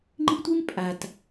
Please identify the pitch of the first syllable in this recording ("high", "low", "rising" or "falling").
high